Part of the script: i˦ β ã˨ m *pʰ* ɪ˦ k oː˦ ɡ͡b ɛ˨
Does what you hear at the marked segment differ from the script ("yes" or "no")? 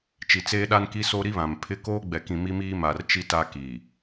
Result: no